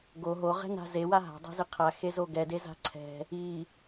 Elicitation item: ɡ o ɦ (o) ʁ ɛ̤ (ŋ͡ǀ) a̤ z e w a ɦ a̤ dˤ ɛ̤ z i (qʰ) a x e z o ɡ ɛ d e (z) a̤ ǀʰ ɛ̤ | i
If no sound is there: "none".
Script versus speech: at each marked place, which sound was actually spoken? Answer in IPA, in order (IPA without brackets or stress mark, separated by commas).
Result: o, n, qʰ, z